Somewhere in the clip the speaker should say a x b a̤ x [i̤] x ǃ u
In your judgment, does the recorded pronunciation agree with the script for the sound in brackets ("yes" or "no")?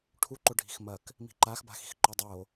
yes